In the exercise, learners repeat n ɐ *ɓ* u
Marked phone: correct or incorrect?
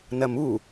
incorrect